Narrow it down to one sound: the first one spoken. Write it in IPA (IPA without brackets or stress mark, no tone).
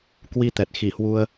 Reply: k